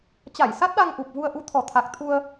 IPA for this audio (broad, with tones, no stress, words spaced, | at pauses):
t͡ɕa˧˩jsa˦˥t̚ɗa˧ŋ ʔu˨˩p̚vu˧ə̯ ʔu˨˦ t̪ʰɔ˨˩t̪ʰa˨˩k̚ t̪ʰu˧ə̯